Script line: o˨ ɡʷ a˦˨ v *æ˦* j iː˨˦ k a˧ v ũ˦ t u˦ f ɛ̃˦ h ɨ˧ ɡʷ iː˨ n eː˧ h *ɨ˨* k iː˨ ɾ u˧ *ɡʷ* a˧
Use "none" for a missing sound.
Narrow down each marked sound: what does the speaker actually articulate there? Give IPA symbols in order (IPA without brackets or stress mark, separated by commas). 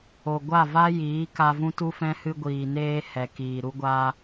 a˦, ɛ˨, ɡʷ